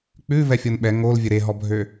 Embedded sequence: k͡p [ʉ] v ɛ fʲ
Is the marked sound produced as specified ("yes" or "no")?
yes